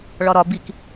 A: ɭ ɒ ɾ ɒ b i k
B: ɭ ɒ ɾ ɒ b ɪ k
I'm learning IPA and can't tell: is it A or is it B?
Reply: A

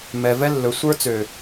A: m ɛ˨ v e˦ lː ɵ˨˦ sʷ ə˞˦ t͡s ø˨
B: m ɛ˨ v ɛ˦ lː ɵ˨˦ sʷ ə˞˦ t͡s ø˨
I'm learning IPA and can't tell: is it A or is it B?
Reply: B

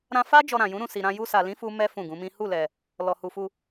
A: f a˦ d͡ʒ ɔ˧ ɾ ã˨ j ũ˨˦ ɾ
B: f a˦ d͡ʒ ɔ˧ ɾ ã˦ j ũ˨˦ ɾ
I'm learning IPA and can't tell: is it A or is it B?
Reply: A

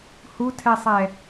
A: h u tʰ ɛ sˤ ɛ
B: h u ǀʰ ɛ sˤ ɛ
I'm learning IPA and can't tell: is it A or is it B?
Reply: A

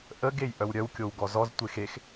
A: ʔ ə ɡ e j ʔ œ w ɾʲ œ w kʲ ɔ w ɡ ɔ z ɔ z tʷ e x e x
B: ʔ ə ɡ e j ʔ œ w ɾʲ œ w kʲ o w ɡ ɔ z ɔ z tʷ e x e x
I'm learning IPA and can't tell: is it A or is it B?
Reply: B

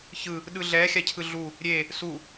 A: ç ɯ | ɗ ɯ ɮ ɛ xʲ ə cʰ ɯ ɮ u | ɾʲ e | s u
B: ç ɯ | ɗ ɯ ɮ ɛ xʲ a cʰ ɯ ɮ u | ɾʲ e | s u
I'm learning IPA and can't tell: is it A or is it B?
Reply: B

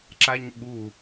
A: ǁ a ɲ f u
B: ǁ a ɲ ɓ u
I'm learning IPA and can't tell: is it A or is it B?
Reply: B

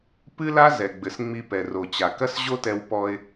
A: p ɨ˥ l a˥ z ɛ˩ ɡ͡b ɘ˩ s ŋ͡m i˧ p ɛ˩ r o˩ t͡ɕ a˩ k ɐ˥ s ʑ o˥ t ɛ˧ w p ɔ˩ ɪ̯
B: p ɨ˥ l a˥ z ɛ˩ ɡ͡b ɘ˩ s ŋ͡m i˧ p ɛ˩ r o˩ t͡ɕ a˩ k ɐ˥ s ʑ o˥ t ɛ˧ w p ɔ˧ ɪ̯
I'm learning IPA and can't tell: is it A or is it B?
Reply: B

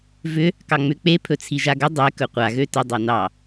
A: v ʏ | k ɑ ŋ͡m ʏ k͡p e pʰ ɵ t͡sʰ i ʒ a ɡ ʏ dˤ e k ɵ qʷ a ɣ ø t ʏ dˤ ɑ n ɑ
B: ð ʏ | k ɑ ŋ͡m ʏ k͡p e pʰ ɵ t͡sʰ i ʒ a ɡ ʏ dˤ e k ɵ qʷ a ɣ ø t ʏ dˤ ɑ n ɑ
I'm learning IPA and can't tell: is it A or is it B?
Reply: A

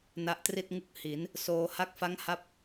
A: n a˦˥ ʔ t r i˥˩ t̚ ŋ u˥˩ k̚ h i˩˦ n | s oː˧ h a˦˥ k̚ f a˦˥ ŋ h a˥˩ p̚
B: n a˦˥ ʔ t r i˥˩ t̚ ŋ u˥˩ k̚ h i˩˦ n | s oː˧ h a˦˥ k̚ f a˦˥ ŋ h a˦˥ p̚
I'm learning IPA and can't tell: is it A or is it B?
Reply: B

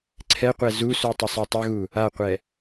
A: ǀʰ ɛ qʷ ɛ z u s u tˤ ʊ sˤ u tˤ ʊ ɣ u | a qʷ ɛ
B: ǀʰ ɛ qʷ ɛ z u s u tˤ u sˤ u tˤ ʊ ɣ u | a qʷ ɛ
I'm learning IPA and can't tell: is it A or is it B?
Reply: A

